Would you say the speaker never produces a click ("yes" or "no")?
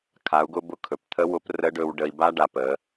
yes